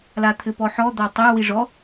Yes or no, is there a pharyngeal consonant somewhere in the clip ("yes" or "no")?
yes